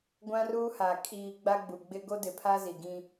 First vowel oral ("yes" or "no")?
no